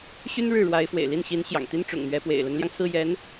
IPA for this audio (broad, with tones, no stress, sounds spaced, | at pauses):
ɕ y˥ n ɻ ɻ̩˥˩ ɻ w a˧˥ ɪ̯ f w ḛ˨˩ ɪ̯ l i˥˩ n ɕ i˧˥ n ɕ j ɑ̰˨˩ ŋ t̪ i˥ n ʈ͡ʂ ʊ̰˨˩ ŋ n̪ ɥ ɛ˧˥ p w ḛ˨˩ ɪ̯ l ə˧˥ n l j ɑ˧ ŋ t͡sʰ ɹ̩˥˩ j ɛ˧˥ n